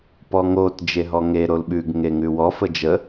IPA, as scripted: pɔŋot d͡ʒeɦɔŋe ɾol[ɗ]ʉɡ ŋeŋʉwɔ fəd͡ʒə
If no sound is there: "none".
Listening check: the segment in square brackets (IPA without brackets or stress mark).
ɓ